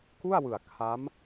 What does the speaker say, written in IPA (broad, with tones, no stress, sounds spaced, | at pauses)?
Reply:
k u˥˩ a̯ w ɯ˨˩ a̯ kʰ a˦˥ m